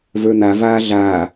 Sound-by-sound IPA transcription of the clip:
v ə˞ n̪ a v aː ɮ aː

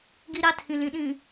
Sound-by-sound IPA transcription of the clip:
ɡ i˦ ɾ a˦ tʰ ĩ˨ l ĩ˨ ɗ ĩ˨

